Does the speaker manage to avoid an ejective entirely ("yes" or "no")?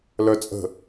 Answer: no